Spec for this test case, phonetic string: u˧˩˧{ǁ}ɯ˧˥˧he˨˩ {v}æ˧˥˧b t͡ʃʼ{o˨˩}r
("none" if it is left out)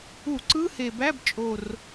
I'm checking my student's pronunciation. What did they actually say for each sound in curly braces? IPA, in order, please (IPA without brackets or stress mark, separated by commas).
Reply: ǀ, b, o˨˩